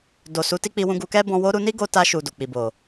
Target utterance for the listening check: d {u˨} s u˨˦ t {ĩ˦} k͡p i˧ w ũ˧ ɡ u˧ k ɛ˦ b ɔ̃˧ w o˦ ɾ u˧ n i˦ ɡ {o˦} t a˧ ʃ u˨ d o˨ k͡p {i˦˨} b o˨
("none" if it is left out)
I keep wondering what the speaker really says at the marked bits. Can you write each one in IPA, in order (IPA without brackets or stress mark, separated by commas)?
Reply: o˨, i˦, o˧, i˨